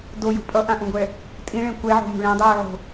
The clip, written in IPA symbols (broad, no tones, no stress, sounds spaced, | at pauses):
d o j ṳ pʼ ʌ ʔ ã ʔ ũ ɡʷ ɛ | tʼ ĩ ɭ ẽ kʷ ɛ ʕ o̤ m ṳ ɭ ẽ dˤ uː ʕ o̤